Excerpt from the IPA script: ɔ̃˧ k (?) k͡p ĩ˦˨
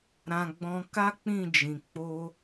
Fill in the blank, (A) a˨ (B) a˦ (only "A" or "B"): B